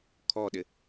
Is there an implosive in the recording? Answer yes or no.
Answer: yes